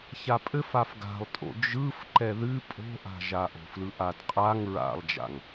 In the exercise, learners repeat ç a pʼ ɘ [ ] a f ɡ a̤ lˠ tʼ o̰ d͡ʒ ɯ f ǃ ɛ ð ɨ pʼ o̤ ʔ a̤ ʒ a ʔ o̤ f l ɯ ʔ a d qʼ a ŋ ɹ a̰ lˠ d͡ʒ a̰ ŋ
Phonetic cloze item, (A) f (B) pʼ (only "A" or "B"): A